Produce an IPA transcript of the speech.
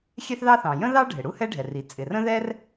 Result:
xʲ ɛ˥ θ ð ɑ˥ θ ɑ̃˩ j ə̃˥ ð ɑ˥ ɖʱ ɪ˩ ɽ u˥ h ɛ˥ ɖʱ ɛ˩ r i˩ t͡sʼ ɪ˩ r ə̃˥ ð ɛ˥ r

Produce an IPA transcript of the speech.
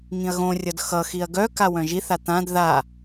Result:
ŋ ĩ ɐ̯ ɣ õ rʲ ʌ d x ʌ x i ɐ̯ ɡ œ k a w œ̃ ʒ i θ a t̪ ã d ð a

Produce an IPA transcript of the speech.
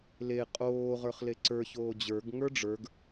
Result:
l e qʼ oː ʁ ə˞ χ l e ǀ ə˞ ç oː d͡ʑ ə˞ ɡ ŋ ə˞ ɖ͡ʐ ə˞ ɡ

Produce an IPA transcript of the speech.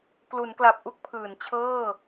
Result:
k l u˩˦ n k l a˨˩ p̚ ʔ u˥˩ k̚ pʰ ɯː˩˦ n t͡ɕʰ ɤː˥˩

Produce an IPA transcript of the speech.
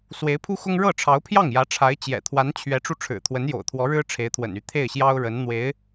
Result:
s w e˧˥ ɪ̯ pʰ u˥ x ʊ˥ ŋ ɻ ɤ˥˩ ʈ͡ʂʰ ɑ˧˥ ʊ̯ pʰ j ɑ˥˩ ŋ j ä˧˥ ʈ͡ʂʰ a˧˥ ɪ̯ t͡ɕ j ɛ̰˨˩ t̪ʰ w a˧˥ n t͡ɕʰ ɥ ɛ˧˥ ʈ͡ʂ u˧ ʈ͡ʂʰ ɻ̩˨˩ t̪ʰ w ə˧˥ n j o̰˨˩ ʊ̯ t̪ʰ w ɔ˧˥ ɻ ɻ̩˥ ʈ͡ʂʰ e˧˥ ɪ̯ t̪ʰ w ə̰˨˩ n y˧˥ t̪ʰ e˥˩ ɪ̯ ɕ j ɑ˥ ʊ̯ ɻ ə˧˥ n n̪ w e˧˥ ɪ̯

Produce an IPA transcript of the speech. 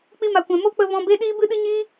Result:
k͡p i˧ m a˨ kʷ ɛ̃˨ m o˦ k͡p ə˧ v ɔ̃˧ b e˦ ɗ iː˦ b ɨ˦ ɗ ɨ˦ ɲ iː˦

